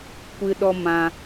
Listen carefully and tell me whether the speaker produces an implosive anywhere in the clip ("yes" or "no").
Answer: yes